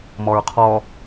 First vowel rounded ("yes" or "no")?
yes